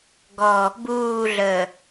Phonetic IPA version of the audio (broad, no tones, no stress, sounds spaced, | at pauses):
ɡ ɔ | b uː ɮ əː